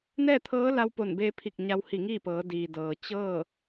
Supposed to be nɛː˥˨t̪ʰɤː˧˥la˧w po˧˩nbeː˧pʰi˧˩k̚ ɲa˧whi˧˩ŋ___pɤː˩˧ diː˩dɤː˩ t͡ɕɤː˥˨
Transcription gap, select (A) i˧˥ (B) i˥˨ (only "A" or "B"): B